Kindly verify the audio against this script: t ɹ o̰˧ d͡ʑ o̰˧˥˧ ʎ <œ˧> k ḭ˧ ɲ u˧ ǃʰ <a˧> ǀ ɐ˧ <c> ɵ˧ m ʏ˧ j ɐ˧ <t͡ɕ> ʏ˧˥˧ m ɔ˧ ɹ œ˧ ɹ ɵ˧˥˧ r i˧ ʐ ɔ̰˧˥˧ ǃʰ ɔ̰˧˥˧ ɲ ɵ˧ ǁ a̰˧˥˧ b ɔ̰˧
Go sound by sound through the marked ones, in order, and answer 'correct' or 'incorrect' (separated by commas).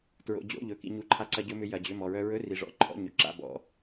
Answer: incorrect, correct, incorrect, incorrect